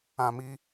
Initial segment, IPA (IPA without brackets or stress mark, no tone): ã